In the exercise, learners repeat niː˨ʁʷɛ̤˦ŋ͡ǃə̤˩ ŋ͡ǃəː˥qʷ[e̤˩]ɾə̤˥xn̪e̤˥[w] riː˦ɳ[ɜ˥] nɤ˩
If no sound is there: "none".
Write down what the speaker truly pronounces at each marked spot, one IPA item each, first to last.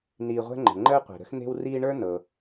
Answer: e̤˩, w, ə˞˥

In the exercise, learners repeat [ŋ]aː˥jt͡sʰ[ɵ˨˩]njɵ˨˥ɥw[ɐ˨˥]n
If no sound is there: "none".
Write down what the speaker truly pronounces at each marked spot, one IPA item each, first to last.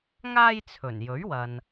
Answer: ŋ, ɵ˨˩, ɐ˨

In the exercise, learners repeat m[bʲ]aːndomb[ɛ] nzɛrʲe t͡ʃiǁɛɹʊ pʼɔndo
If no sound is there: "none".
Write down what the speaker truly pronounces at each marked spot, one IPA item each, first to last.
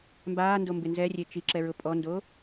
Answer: b, ɪ

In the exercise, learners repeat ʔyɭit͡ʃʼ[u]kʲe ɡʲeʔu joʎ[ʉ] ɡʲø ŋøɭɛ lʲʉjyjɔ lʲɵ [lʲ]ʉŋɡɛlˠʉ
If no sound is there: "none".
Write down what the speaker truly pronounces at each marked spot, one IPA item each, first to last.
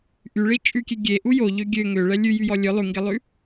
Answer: ʉ, ø, lˠ

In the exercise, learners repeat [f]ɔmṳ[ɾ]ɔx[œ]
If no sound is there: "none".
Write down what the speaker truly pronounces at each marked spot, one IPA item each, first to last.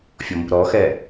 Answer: fʲ, ɾ, ɛ

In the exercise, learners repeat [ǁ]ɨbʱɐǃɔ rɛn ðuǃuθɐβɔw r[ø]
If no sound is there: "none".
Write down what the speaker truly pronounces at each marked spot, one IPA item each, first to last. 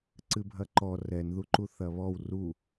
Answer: ǀ, u

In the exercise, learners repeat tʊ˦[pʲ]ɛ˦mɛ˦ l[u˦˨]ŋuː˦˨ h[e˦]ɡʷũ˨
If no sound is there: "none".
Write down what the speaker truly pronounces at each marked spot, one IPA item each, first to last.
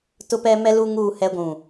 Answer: p, u˦, ɛ˦

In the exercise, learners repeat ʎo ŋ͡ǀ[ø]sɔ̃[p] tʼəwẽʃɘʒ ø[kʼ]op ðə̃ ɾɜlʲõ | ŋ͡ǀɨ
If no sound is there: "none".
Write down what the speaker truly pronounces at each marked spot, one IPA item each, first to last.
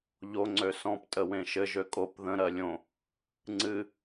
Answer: ø, p, kʼ

